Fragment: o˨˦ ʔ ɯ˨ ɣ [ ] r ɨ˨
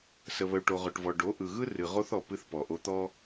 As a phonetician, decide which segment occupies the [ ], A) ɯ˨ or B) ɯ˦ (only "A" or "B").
B